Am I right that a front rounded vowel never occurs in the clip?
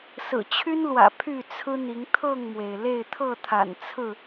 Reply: no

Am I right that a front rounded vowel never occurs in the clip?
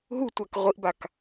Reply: yes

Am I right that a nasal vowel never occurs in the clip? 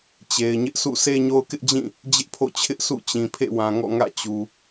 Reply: no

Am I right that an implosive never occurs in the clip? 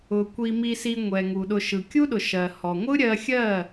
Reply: no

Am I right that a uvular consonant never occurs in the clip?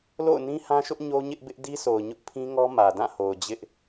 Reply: yes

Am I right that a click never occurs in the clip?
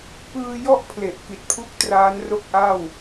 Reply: yes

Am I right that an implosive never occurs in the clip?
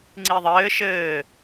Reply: yes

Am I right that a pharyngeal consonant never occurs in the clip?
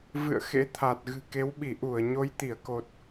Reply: yes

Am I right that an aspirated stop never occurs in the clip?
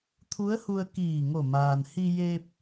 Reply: no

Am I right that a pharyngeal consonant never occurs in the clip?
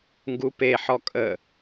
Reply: no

